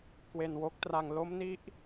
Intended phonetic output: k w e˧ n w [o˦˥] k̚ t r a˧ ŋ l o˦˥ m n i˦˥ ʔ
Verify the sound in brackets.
correct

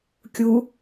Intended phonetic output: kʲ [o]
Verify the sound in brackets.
incorrect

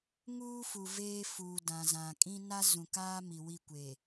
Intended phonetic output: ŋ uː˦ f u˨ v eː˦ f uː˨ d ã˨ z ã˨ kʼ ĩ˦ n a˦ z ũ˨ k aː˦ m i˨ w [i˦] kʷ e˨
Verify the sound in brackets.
incorrect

